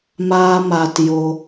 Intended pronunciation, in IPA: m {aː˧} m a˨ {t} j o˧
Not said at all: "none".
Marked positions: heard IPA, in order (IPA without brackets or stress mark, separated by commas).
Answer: aː˧, t